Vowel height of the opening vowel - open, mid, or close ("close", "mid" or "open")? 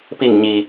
close